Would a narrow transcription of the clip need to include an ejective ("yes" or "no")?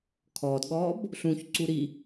no